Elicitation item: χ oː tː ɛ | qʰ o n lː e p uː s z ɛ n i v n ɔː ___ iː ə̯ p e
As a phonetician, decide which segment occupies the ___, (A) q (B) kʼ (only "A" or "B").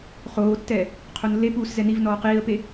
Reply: A